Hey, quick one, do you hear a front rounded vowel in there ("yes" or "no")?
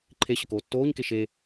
no